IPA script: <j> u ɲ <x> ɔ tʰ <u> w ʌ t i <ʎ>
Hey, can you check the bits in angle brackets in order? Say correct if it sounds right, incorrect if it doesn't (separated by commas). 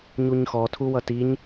incorrect, correct, correct, incorrect